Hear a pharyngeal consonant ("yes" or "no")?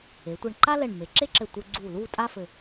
no